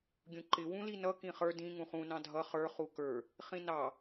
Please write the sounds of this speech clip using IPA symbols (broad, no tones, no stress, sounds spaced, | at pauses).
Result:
ɡʲ ũ ǃ ɪ w ũ l i n ʌ k ĩ χ ə˞ d ĩ ŋ ũ χ ũ n ɑ̃ dʱ ʌ χ ə˞ χ u k ə˞ | χ ĩ n ɑ